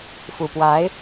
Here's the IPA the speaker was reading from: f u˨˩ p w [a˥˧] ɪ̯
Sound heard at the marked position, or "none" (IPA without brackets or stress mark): a˧˥